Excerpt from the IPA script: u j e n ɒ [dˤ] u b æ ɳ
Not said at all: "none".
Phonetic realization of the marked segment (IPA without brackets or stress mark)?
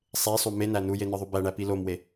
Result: ðˤ